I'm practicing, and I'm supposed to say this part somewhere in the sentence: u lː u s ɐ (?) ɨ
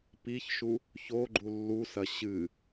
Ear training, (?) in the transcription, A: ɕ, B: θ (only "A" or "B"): A